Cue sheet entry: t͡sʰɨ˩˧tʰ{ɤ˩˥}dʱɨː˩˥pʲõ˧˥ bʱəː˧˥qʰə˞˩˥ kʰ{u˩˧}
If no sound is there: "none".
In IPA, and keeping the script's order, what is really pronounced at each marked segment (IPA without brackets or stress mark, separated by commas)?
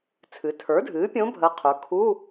ə˞˩˥, u˧˥˧